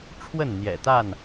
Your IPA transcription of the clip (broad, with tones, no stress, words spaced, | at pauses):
ʈ͡ʂʰwə˥˨nn̪jɛ̰˨˩t̪a˥˨n